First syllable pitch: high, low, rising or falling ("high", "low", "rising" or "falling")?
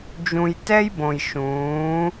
low